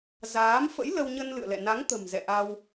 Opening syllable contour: rising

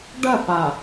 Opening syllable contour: falling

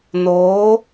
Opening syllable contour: rising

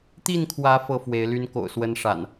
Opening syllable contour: falling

